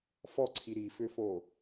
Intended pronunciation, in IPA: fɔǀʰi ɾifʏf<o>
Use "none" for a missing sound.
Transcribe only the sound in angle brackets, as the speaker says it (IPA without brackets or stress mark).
o